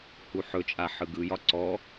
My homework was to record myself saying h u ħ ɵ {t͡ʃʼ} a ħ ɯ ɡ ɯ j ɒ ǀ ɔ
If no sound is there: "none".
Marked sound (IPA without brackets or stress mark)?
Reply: t͡ʃʼ